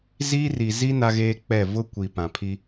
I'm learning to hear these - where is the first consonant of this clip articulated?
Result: tongue tip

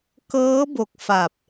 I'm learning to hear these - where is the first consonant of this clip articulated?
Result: velum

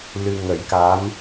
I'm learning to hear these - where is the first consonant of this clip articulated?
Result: tongue tip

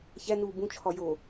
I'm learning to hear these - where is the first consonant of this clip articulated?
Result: palate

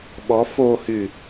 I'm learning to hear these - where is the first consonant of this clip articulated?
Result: lips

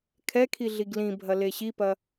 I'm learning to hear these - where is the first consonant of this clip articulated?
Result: velum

